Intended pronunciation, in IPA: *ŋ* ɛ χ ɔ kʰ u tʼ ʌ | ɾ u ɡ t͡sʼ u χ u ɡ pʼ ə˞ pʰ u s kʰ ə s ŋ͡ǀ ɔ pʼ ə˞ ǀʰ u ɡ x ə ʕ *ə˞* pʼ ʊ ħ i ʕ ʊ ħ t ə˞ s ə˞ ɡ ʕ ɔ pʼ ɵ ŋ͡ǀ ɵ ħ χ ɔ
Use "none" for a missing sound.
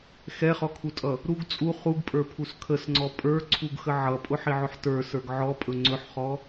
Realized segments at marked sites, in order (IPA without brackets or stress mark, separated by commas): x, ʌ